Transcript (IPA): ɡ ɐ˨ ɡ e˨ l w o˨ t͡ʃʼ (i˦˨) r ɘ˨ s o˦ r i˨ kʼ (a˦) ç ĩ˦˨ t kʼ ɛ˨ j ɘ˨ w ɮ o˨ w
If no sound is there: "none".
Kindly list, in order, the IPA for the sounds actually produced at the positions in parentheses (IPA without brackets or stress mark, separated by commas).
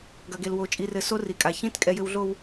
i˨, a˨